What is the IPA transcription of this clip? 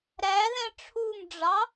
ɾæðɛ̃ ʈ͡ʂʰumɖ͡ʐɑ

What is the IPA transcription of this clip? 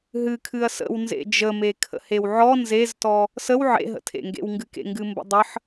ɦɨkʰɨɐ̯ sə̰w nzḛd͡ʒəme kʰə̰hewʕɔ nzeztɔ | səw ʕḛɦə̰tʰḛŋɡḛw ŋɡɨkḛŋɡɨmbə̰ dˤəħ

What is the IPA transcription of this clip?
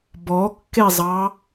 bɔkːezˤɑ

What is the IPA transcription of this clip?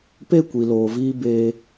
pe˦˨kʷi˨loː˨viː˧ be˧

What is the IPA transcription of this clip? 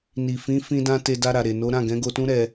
ni˨ fĩ˨˦ fĩ˧dã˧ te˧da˧ɾa˨ ɾe˨no˨˦ɾã˦˨ ɡɛ̃˨˦ɡo˧tũ˦ ɾɛ˧

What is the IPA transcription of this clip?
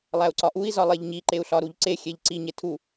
lˠæu̯ǀɒʔui̯ zɒlˠeʎɲi ǃeu̯ɬɒɾuʎǀe xʲeʎǀi ɲetʰu

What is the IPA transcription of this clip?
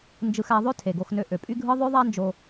nd͡ʒɯ˧xæ˧ðˤø˦ tʰe˨ɡo˧xnø˧ ʔø˨pʼy˦ɡʱɯ˦ ðˤø˦ðˤæ˦nd͡ʒo˧

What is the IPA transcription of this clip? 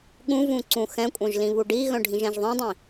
ɠũvũ ǀũxɛ̃kʷʼœ̃ʒ lĩβuɖiɣœ̃ ɖʱĩʒɛ̃ʒðˤĩdˤĩ

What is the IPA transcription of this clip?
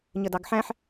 ɲədɑɡħæ̃ħ

